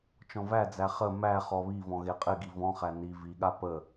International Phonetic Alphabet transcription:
t͡ʃ ɔ̃ v æ d͡z æ χ ə m æ χ ɔ β i v ɔ̃ ɣ e qʼ ɪ ɡ i v ɔ̃ χ æ n i v i ɠ a p ə

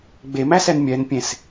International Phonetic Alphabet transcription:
ɡ͡b e m æ s ɛ n mʲ ɛ n pʲ ẽ s

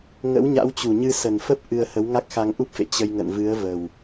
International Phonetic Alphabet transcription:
ŋ ə̰˧˥ w ɲ a̰˧˥ w t͡ɕ u˨˩ ɲ ɨ˧ s ə˨˩ n f ə˦˥ p̚ ʔ ɨ˧ ə̯ h ə˨˦ w ŋ a˦˥ k̚ x a˧ ŋ ʔ u˦˥ p̚ f ḛ˧˨ t͡ɕ ə˧ j ŋ ə̰˧˨ n v ɨ˨˦ ə̯ v ə˨˩ w

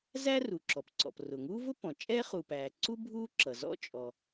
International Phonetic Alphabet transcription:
z æ˥ r u˩ ǁ ɔ˩ p ǀ ɔ̰˩ p r ʊː˩ ŋ uː˥ v ʊ˥ p ɔ̃˩ t͡ʃʼ ɛː˥ χ u˩ p æː˩ ǀ u˥ bʱ uː˥ ǁ ʌ˩ z ɔ̰˥ t͡ʃʼ ɔ˩

